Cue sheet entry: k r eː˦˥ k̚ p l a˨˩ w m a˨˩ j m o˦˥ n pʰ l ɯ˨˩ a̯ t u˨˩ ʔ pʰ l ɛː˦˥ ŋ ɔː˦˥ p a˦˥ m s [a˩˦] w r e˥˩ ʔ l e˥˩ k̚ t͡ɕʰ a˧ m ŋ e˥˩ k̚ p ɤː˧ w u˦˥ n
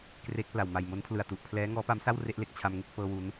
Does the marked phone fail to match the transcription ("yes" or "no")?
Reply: yes